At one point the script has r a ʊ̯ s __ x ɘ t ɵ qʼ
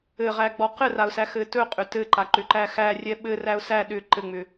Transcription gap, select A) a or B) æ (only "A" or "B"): B